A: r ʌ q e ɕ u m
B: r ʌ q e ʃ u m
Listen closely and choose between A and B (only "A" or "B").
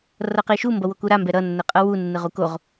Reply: B